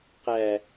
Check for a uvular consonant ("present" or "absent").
present